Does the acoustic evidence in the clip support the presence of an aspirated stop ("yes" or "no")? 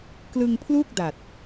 yes